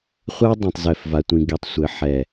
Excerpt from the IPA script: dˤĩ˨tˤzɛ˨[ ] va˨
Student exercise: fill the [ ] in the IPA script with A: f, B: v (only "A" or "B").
A